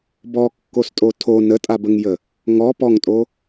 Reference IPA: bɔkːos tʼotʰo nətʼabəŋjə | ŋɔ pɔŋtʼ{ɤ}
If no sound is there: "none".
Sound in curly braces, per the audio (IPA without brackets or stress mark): o